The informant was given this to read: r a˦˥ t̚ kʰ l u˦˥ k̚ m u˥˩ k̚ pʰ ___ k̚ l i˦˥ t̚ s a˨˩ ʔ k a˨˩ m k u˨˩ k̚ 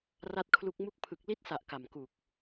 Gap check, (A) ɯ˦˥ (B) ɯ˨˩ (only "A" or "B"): B